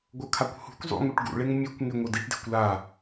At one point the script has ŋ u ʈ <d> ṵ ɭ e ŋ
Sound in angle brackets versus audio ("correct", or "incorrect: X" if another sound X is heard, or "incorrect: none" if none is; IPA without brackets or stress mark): incorrect: ɡ